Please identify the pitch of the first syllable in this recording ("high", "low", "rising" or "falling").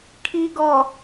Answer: low